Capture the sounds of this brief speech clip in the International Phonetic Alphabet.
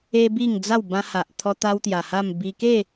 e˦ b i˥˧ ŋ d͡z a˥˧ w b ã˧ h a˨ ʔ t̪ʰ ɔ˦ t̪ a˦ w t̪ j a˨˩ h a˥˧ m b i˧ k e˥˧

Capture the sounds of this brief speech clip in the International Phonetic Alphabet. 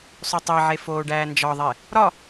sˤ o tˤ i ʕ e f oː ɖ æː n d͡ʒ ɒ ðˤ e | ɾ ɒ

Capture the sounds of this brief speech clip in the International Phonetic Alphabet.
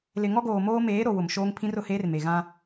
l ɪ˨ ŋ ɔ˦ ɡ oː˨ m oː˦ m eː˨˦ ɾ o˨ w ʊ˨ m ʃ oː˦ ŋ pʰ ĩ˦ r ʊ˨ h eː˦ r m e˨ ɣ ã˦

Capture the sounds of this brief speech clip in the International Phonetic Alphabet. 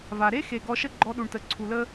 v a˨ ɾ e˦ x e˨ ɡ ɔ˧ ʃ ə˦ ɡ͡ǃ ɔ˧ ɗ u˨ ɳ t ə˨ ǀʰ u˨ l ə˦

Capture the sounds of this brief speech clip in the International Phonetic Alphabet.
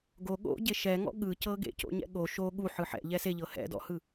ɡ o ɠ o̰ ɟ e ʃ ɛ ŋ ɔ̰ ɠ ɯ c ɤ ɡ ḛ c o̰ ɲ ɛ̰ ɠ o ʃ o ɠ u ħ ɯ ħ ɛ̰ ʎ ɛ s e ʎ ɤ h ɛ̰ d ɔ̰ h ɯ

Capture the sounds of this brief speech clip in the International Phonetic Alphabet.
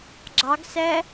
ɡ͡ǁ ɑ ɡ s ɛ

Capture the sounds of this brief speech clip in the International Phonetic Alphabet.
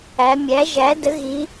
æ˩˧ mʲ æ˩˥ ʒ æ˩˥ d ə˩˥ ɣ i˩˧

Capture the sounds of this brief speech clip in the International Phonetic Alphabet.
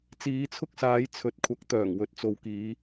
t͡s iː˨˧ t͡sʰ ʊ˥ k̚ s aː˨˧ j t͡sʰ ɵ˨˥ t̚ kʷʰ ɐ˨˥ k̚ t̪ œː˨˩ ŋ w ɵ˨ t̚ t͡s o˨ w k iː˨˧

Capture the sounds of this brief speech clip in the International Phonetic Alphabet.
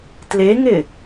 t l e ŋ ɪ

